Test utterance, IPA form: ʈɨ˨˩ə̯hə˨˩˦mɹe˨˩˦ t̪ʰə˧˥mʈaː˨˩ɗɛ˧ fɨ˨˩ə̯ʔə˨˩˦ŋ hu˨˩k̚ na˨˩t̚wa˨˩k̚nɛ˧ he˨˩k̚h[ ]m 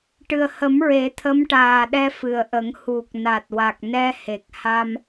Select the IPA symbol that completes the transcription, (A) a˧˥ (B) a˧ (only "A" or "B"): B